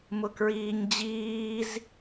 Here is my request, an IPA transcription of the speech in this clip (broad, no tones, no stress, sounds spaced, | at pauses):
m ʊ k ɹ iː ɲ d͡ʑ iː z